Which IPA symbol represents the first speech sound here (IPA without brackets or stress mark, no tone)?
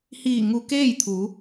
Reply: h